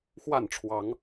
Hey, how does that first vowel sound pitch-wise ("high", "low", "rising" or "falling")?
falling